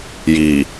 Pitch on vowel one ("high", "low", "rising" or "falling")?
low